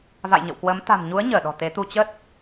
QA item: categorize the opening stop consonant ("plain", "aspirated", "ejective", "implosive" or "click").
plain